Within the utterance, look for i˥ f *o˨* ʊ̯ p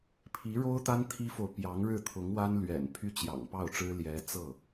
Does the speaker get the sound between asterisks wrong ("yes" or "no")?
no